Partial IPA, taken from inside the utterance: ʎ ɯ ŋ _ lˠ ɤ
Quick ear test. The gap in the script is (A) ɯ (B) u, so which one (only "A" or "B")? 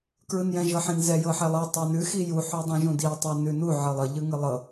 A